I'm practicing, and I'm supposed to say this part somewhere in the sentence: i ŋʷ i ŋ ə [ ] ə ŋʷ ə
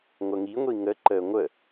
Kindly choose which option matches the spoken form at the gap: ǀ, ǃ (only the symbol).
ǃ